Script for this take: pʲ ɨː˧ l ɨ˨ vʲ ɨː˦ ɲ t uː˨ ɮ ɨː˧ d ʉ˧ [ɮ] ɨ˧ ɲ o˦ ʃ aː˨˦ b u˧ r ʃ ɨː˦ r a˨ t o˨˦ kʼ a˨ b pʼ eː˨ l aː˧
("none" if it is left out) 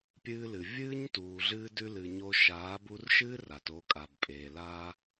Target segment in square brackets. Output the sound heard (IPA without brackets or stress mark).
l